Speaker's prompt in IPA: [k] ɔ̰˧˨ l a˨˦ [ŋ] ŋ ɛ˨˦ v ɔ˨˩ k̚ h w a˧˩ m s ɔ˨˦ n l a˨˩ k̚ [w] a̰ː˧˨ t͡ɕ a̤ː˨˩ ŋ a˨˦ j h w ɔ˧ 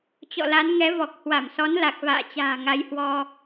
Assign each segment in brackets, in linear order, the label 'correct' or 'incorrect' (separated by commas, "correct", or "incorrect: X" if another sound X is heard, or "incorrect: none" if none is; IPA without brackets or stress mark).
incorrect: t͡ɕ, incorrect: n, incorrect: v